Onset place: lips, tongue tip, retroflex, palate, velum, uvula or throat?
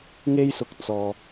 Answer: velum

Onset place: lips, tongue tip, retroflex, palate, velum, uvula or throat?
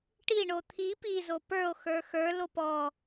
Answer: retroflex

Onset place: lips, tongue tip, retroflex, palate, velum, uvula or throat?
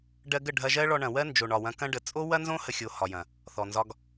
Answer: retroflex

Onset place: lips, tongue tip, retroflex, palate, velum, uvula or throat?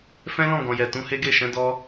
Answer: lips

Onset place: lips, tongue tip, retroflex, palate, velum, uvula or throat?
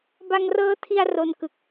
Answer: lips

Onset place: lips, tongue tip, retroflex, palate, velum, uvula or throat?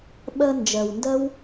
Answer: lips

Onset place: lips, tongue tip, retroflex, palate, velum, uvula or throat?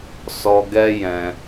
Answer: tongue tip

